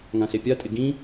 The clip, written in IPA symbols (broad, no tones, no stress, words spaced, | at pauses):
ŋãɬepʲatʼɪ ɡĩ